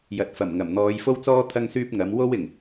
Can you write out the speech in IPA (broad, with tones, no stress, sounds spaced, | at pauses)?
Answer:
j ɐ˨ t̚ f ɐ˨˩ m ŋ ɐ˨˩ m n̪ ɔː˨˧ j f o˥ w t͡s ɔː˥ t̪ʰ ɐ˥ ŋ s yː˥ p̚ ŋ ɐ˨˥ m w o˥ w ɪ˨˩ ŋ